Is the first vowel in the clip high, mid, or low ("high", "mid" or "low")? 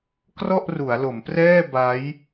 mid